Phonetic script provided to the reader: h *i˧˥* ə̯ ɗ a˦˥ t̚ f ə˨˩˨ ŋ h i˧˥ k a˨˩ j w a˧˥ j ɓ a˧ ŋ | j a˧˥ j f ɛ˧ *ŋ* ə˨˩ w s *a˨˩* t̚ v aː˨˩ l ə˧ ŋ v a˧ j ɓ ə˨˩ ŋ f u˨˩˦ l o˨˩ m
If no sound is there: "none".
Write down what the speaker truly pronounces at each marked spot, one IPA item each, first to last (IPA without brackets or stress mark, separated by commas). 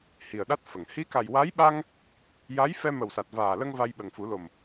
i˨˩, m, a˨˩